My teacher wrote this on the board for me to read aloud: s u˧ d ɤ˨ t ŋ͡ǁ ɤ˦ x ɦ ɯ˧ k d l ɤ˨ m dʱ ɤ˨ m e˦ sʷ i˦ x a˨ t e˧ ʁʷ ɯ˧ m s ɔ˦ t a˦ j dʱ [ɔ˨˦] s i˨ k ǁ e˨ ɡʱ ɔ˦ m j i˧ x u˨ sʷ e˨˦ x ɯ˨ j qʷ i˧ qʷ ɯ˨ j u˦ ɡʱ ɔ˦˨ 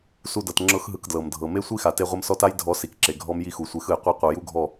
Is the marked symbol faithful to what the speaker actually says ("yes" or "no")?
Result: yes